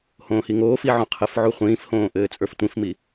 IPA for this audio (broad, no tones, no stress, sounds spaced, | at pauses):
h õː h i ŋ oː f i ʕ õ qʰ ɘ f ʕ u χʷ ĩː f h õː ʔ ɘː t͡sʼ ə˞ f tʷ ĩ f m i